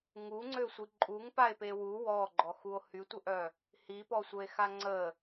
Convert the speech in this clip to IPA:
ŋuŋ͡ǀøsʷi ǃʼuŋpae̯pe wu wɔɡ͡ǃɔxuo̯ hytʷəʔœ | hipɔsʷəe̯xa ŋ͡ǀə

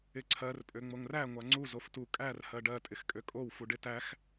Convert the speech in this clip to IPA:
ɪǀʰɜr pʼøŋ͡moŋræ ŋʷaŋ͡ǀu zoftu kʼær hɜɖɜ tʼɪxkʼøkʼow fuɖɪtæx

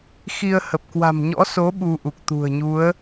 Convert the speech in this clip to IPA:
xi˧ə̯hə˨˩p̚ kwa̤˨˩mɲɔ̰˧˥so˨˦ ɓu˧ʔu˨˩k̚t̪ṳ˨˩ə̯ɲu˨˦ə̯

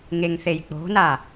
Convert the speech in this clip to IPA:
ŋeŋθejk͡po̤na

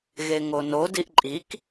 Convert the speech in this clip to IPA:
ɣeŋono diʔǃʼik

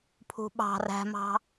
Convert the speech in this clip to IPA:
pʰṳɓɑ̤ ræ̤mɑ̤

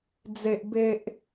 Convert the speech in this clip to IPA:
d͡ze˦ʔbe˦ʔ

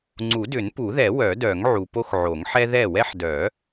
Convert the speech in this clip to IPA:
ŋ͡ǀu˨˩˦dʏ˨˩˦npu˨˩˦ðɛ˨˩˦ wœ˨˩˦dœ˨˩˦ŋ ʕu˨po˦xʕo˨˩˦ŋ ħɛ˦ ðɛ˥˩ wɛ˦ħdœ˨˩˦

